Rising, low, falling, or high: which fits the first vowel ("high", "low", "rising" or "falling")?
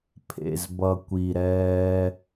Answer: low